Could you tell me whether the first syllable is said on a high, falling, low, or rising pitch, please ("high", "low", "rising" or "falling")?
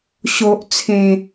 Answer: low